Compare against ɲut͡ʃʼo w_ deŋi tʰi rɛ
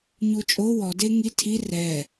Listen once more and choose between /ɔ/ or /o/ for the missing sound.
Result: ɔ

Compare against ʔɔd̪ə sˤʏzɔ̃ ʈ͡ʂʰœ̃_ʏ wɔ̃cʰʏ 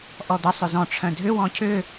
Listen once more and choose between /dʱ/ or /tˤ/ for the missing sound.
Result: dʱ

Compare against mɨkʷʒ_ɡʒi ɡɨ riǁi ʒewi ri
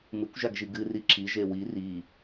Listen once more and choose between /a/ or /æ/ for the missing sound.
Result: a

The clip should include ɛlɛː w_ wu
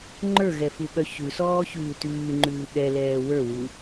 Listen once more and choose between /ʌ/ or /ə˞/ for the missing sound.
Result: ə˞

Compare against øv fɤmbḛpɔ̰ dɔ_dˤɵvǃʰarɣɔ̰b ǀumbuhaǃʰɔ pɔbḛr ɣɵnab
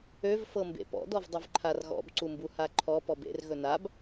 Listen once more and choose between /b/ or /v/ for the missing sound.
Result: v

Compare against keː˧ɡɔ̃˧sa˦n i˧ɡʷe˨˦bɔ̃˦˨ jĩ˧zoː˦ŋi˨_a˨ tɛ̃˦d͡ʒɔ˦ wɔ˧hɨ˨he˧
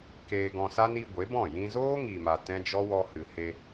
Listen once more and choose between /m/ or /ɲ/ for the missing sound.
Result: m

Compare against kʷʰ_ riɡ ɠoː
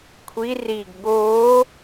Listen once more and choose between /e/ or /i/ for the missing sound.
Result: i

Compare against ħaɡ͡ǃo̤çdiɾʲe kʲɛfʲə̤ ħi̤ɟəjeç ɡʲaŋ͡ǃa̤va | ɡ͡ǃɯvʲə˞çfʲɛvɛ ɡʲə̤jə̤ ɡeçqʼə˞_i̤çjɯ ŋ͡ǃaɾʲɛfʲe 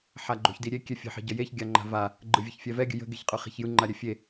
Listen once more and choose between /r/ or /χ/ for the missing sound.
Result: χ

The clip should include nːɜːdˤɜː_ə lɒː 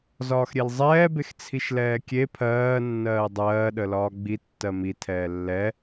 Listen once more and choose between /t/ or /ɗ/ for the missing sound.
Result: ɗ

